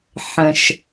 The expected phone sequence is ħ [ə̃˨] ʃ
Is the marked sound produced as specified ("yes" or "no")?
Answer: yes